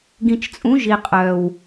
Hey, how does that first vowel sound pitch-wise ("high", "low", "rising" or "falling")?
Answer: low